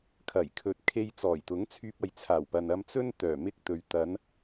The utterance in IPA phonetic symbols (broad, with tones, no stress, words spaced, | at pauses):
kʰɐ˨˩jkʰɵ˨t̚kʰe˧j t͡sɔː˨˩jt̪ʊ˨˥ŋt͡sʰyː˧p̚ ɐ˨jt͡sʰaː˨˩wpɐ˨n ɐ˧mt͡sɵ˥n t̪œː˨˩mɪ˧k̚t̪ɵ˨ɥ t̪ɐ˨˧n